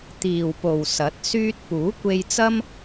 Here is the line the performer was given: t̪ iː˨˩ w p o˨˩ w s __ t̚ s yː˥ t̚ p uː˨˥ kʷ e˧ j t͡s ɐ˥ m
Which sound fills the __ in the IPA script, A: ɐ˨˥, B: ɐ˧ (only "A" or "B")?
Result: A